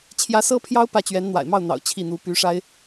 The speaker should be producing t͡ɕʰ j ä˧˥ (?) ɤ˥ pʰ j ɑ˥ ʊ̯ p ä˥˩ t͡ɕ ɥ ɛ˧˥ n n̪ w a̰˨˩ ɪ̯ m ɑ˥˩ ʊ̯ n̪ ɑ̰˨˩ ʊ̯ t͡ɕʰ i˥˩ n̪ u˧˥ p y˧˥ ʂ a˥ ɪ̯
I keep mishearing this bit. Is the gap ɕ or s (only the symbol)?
s